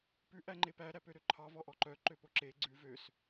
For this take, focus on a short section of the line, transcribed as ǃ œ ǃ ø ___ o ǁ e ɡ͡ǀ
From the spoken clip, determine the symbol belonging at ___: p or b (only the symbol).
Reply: p